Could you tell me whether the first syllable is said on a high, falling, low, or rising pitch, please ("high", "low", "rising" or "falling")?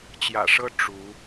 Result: low